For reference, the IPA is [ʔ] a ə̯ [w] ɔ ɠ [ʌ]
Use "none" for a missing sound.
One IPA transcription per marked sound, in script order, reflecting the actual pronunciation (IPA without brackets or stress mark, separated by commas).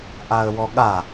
ʔ, w, a